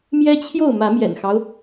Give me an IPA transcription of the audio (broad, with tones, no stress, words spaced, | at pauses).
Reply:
mjɛ˦t͡ɕʰjo˥˨ʊ̯mä˨˦ mjɛ̰˨˩nxɑ˦ʊ̯